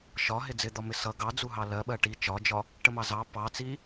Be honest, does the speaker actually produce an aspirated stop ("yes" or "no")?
no